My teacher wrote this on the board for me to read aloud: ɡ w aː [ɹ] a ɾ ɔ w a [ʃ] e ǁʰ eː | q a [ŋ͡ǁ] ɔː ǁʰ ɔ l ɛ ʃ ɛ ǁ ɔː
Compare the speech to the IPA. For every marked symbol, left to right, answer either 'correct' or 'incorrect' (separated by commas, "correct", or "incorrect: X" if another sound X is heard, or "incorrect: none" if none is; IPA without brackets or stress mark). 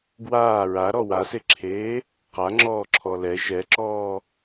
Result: correct, incorrect: s, correct